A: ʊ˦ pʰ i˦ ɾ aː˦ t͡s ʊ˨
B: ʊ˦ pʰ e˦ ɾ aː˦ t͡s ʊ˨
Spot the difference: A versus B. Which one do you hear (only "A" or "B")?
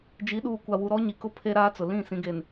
B